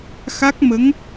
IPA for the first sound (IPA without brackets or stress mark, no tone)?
x